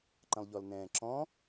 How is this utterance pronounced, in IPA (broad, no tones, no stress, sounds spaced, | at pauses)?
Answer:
ǃ ə̃ lˠ ʎ ɔ l n ɛ̃ː ǁ ɔ̃